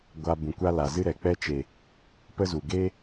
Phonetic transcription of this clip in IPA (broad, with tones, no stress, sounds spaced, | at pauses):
ɡʷ a˧ b ũ˨ kʷ a˦ l a˨ z ɨ˦ ɾ ɛ˨ k͡p ɛ˧ t͡ʃ e˨ | p ə˦ z u˨ ɡ e˦